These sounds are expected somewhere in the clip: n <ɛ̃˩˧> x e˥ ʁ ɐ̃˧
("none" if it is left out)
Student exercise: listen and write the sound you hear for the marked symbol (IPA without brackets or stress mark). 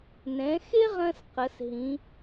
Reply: ɛ̃˩˧